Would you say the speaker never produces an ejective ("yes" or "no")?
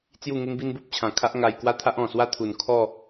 yes